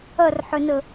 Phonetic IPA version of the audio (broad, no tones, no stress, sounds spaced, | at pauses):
ɐ r ħ ʏ n ə